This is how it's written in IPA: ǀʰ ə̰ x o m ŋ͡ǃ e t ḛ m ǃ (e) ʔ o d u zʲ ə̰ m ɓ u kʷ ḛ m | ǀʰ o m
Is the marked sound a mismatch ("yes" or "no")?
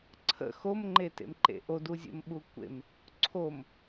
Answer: yes